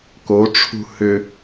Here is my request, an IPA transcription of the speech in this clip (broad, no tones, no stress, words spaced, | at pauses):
koʈ͡ʂʰṳ hʏ